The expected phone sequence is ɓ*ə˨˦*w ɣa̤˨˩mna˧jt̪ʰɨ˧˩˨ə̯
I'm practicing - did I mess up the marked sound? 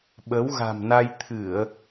no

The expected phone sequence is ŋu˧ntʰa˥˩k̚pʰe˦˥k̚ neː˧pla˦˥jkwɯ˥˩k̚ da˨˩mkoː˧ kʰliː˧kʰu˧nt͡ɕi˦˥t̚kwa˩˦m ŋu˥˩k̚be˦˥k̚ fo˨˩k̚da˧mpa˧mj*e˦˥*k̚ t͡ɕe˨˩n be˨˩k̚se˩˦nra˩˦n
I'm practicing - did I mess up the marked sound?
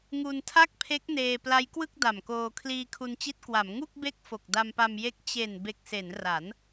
no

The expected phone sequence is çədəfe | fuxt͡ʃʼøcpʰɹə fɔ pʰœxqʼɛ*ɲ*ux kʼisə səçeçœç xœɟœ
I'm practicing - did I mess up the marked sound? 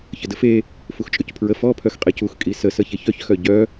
yes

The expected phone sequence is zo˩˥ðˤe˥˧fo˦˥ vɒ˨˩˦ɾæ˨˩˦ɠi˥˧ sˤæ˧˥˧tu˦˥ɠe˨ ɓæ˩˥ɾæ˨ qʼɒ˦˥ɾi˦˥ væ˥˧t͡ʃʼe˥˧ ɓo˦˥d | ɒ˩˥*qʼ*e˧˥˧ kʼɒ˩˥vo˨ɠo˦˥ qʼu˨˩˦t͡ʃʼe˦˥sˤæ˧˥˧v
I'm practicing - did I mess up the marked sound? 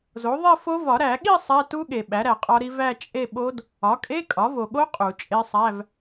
yes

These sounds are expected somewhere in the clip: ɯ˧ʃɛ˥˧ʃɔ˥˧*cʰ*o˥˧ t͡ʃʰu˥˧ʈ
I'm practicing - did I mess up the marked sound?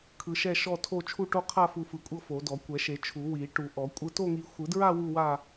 yes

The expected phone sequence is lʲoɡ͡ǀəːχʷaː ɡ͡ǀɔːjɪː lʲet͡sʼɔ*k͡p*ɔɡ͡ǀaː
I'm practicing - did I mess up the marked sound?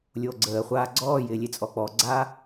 no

